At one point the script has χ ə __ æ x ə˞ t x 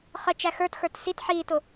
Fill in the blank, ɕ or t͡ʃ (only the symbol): t͡ʃ